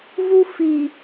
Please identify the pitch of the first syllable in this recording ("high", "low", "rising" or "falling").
high